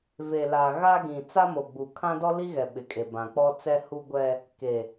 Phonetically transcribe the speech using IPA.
ve˨la˨ɣa˦ɡĩ˨ t͡sa˦mo˨ɡ͡bu˨ kʰã˦dɔ˦li˦ɣɛ˨ ɓɪ˨kʼe˨ bã˨k͡pɔ˦t͡sɛ˦ hu˦ɡʷɛ˦ | ke˨

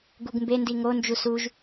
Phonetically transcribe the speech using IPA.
ɡuɡmbendi ŋond͡ʒu suʒ

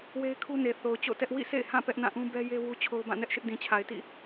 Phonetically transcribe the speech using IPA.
we˦ɪ̯kʰu˦ne˨ θo˨ʊ̯t͡ɕo̰˦˨tɛ˦ʔ wḭ˦˨sḛ˦˨ɪ̯hã˦˨ pɛ˦ʔnã˦˨ʔũ˦ bɛ˦je˦ wu˦t͡ɕʰo˦ʊ̯ bã˦˨nɛ˦ʔʃɪ˦ʔ dĩ˨t͡ɕʰa˨ɪ̯tḭ˦˨

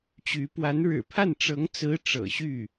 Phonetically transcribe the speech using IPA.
t͡ɕy˧˥ pwa˧˥nɻɻ̩˨˩pʰa˥˩n ʈ͡ʂɤ˧˥ŋt͡sɹ̩˧˥ ʈ͡ʂɤ̰˨˩ɕy˥˩

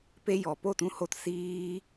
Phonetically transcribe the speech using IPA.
pe˧jɔ˨po˦˨ tũ˦ho˦t siː˦

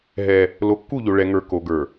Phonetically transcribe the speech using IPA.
ɦɛ˦ | lo˨˦kːu˦˨ʎo˨ ɭɛ˨ŋə˞˨ ko˨ɡə˞˨

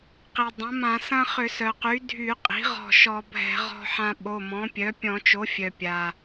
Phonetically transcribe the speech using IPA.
qi˩dˤɐ̃˩˥mã˧˩˧ sɐ̃˦χʏ˧˩˧sœ˩qy˩˥ dʱy˧˩˧qʼi̤˩˥ʁɔ̤˧˩ ʃɔ˧˩˧bʱɛ̤˧˩˧ʁɔ̤˦ħã˦ ɓo˩˧˩mɔ̃˩˥pʲœ˩˥ pʲɔ̃˧˩˧t͡ʃo˩˥fʲœ˩ pʲa˩

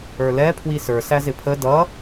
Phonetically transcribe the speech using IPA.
ə˞lɛ pʰwisə˞ sæzɪpʰə dʌ

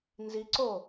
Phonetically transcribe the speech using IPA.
nziǀo

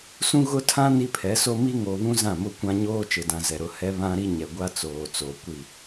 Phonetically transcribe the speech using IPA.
sũ˦ɣʊ˦tʰã˦ ni˦pʰɛ˨˦so˦ mi˦ŋo˨βũ˦ zã˦˨mʊ˦kʷã˦ ɲoː˦t͡ʃɪ˨dã˨ zɛ˨ɾʊ˦ hɛ˦ βã˦ɾi˦ɲɛ˨ɡʷa˦ t͡soː˨t͡so˨ kʷi˦˨

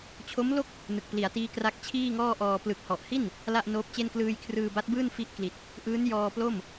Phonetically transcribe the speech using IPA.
t͡ɕʰo˦˥mlo˥˩k̚ | nɯ˨˩k̚pli˩˦a̯tiː˦˥ kra˦˥k̚t͡ɕʰiː˥˩ŋɔː˥˩ʔɔː˧ plɯ˨˩k̚hɔ˨˩ʔhi˥˩n | la˥˩ʔnoː˦˥p̚t͡ɕe˥˩n klɯː˧jkʰrɯː˧ba˦˥t̚bɯː˥˩n fi˦˥ʔkli˨˩t̚ | ʔɯː˦˥n jɔː˧plo˥˩m

